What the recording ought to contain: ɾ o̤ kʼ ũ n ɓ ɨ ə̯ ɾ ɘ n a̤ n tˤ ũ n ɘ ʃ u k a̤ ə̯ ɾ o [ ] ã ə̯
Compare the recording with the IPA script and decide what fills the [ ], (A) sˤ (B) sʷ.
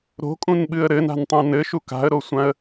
B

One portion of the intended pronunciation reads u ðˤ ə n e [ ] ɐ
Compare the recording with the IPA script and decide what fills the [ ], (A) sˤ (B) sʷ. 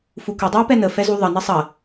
A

